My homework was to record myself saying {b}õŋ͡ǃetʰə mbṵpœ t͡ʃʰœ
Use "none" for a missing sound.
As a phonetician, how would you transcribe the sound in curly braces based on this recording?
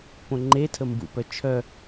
p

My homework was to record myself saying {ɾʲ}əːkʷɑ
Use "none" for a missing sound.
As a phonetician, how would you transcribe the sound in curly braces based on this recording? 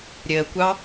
ɾʲ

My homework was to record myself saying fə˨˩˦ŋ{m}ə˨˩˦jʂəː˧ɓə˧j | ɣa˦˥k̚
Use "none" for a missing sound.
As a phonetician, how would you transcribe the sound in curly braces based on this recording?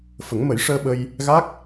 m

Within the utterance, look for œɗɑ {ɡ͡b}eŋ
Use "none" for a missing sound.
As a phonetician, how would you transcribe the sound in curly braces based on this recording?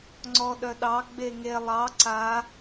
ɡ͡b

